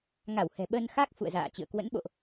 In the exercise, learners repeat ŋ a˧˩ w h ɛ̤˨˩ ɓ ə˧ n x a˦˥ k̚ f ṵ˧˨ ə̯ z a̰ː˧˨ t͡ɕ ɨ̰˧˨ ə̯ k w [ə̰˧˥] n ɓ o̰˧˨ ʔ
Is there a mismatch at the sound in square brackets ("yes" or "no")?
no